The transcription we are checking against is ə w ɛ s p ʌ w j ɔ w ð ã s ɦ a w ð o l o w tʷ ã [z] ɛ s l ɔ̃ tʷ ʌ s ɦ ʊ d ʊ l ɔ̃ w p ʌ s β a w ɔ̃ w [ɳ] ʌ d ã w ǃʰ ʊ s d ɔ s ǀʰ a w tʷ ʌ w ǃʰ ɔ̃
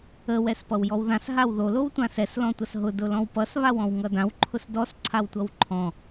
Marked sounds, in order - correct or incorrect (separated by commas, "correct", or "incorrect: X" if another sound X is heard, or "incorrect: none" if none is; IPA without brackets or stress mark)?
incorrect: s, incorrect: ŋ